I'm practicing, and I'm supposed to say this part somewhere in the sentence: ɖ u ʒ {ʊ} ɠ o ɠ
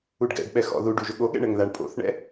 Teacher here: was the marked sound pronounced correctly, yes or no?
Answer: yes